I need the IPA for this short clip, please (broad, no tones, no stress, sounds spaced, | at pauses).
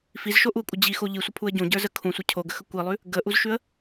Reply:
f i z ʃ o ʔ u ə̯ kʷʼ ə d͡ʑ i x o ʎ i sʷ ə pʰ u ə̯ ɟ õ ɟ ə˞ z ə kʰ ũ sʷ ə cʰ o ɡ ə x ə kʷ i lˠ ʉ | ɡ ə ʔ u z ʃ ʉ ə̯